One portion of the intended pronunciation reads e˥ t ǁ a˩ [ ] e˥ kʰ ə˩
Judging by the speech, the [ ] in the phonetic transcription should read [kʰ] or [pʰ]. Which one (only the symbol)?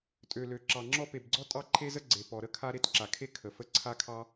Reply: kʰ